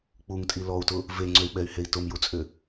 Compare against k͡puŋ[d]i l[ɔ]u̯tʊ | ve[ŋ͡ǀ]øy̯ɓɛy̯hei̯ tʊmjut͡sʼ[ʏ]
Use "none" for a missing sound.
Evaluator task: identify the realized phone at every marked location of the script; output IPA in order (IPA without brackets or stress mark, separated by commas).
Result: tʼ, ɔ, ŋ͡ǀ, ʏ